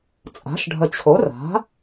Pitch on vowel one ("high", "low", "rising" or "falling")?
rising